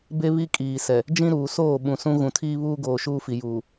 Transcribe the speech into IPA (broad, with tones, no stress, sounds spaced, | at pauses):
b e˦ β i˦ kʼ iː˨ s ɛ˨ | d͡ʒ ĩ˦ ɾ uː˨ s oː˦˨ ɓ ũ˨ s ũ˦ ɣ ũ˨ tʰ iː˦ β uː˦ ɡ oː˨ ʃ uː˦ f i˨ j uː˨